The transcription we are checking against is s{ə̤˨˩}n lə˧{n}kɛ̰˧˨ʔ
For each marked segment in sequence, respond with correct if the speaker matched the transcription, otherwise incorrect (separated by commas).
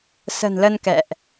correct, correct